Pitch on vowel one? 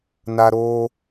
high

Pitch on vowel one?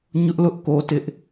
high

